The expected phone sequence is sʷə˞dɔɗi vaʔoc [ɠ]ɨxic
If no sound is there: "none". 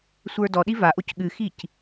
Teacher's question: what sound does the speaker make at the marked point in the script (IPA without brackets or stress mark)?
ɠ